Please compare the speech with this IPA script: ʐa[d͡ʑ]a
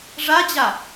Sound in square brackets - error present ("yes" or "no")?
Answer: no